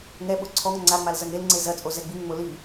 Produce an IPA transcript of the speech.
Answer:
ŋ ɛ ɓ o ǀʰ ɔ ŋ ŋ͡ǀ a ŋ͡m a l z ɐ ŋ e l ŋ͡ǀ e z ɐ t͡sʼ o z ɛ ɡ͡b i ŋ ŋ͡m o l i

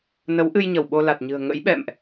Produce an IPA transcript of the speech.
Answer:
n ə˨˦ w ʔ ɨ˧ j ɲ ə˧˩ w ɓ o˧ l a˨˩ t̚ ɲ ɨ̤˨˩ ə̯ ŋ ə̰˧˥ j ɓ ɛ̰˧˨ m ʔ

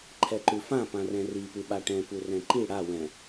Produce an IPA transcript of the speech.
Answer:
ǃʰ ɛ ǃ ʉ f ã p ã r ɛ̃ r i p ʉ ɓ a ʈ ɛ̃ p u r ɛ̃ ǃ i ɽ a w ɛ̃

